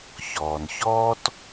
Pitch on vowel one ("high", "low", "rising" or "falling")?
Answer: low